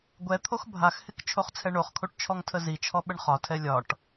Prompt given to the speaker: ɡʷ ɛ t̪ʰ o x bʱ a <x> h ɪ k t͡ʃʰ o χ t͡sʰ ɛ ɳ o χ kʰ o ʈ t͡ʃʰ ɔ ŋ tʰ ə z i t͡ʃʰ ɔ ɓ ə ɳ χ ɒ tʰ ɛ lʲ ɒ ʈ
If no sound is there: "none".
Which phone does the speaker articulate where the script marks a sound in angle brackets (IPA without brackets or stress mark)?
x